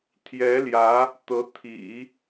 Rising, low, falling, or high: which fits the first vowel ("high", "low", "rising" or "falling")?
rising